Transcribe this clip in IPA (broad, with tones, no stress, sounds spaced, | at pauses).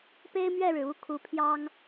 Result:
p e˥ ɪ̯ m ɥ ɛ˥˩ ɻ ɻ̩˩ u˧˥ kʰ u˧˥ pʰ j ɑ˥ ŋ